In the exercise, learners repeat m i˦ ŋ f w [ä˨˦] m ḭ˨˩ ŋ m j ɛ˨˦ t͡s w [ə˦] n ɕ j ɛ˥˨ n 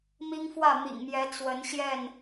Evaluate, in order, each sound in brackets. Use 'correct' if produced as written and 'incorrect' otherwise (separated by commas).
incorrect, incorrect